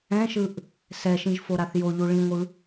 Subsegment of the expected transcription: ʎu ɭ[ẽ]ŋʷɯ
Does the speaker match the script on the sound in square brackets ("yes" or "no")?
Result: no